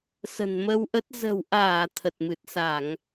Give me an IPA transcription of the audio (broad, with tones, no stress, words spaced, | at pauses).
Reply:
sə̤˨˩nmə˧wʔə˦˥t̚ zə̤˨˩wʔaː˧˩ t̪ʰə˨˩t̚mɨ˨˩t̚sa˧˩˨ŋ